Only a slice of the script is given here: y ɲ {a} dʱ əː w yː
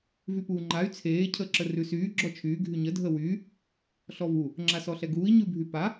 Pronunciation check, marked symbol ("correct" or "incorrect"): incorrect